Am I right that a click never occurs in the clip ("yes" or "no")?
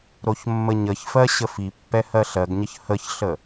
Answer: yes